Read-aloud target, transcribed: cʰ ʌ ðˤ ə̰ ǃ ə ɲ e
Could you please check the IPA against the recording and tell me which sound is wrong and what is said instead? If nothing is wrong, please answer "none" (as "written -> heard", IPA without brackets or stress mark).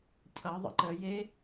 ɲ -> j